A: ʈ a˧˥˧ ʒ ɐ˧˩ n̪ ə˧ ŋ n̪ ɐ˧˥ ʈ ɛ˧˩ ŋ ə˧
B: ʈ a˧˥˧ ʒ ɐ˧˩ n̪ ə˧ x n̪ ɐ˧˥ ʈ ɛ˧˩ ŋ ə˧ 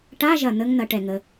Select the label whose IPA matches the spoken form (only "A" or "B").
A